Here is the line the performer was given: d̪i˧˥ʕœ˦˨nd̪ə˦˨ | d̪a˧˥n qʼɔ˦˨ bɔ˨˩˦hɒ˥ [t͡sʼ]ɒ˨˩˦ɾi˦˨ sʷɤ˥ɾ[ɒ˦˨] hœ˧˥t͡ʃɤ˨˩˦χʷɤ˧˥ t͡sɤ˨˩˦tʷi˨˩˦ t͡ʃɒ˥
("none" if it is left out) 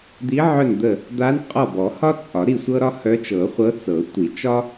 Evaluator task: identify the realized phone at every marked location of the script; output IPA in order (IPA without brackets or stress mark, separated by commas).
t͡sʼ, ɒ˥